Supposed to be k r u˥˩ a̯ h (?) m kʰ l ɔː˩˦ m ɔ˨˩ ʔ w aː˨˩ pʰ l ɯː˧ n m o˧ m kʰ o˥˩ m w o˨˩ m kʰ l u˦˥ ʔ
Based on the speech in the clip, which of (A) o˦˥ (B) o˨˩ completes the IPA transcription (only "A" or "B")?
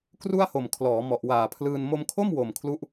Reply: B